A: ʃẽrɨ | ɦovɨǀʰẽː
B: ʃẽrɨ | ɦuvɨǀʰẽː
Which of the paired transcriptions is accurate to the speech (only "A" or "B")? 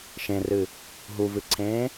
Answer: B